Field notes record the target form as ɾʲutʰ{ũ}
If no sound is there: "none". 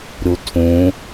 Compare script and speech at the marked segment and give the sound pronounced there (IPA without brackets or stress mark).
ũ